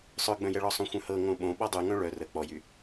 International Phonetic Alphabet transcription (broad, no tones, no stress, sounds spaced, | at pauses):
sˤ œ ɡ͡b œ̃ j ɛ ɭ ɔ sˤ õ xʷ œ̃ h ɤ ŋ õ ɓ õ ɓ ɔ dˤ y ŋ œ̃ ɭ œ r ə k͡p ɔ j y